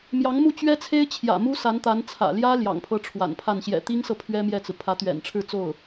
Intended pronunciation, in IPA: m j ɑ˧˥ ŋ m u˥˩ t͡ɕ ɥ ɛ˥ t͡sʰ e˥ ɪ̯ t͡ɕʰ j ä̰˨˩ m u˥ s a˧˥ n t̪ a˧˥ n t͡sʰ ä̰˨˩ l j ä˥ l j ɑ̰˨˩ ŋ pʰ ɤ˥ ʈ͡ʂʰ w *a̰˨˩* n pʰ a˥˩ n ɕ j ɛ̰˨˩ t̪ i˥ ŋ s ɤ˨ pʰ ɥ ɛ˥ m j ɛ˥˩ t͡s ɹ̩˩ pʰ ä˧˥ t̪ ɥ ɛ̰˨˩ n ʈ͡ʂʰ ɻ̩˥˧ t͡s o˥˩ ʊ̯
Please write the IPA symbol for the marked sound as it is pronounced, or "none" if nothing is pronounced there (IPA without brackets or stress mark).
a̰˨˩